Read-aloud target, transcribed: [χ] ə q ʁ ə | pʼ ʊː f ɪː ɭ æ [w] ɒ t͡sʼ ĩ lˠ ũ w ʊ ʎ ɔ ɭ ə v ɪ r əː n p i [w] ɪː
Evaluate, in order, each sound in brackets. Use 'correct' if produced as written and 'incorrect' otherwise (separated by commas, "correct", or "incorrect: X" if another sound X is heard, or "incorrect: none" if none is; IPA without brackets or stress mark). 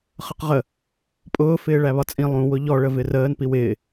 correct, incorrect: β, correct